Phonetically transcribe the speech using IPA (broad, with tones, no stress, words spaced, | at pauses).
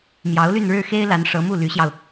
mjɑ˧˥ʊ̯ly˥˧nɻɻ̩˥˩ xe˥ɪ̯la˧˥n ʂɤ˧˥mu˥˩ly˧˥ɕjɑ˧ʊ̯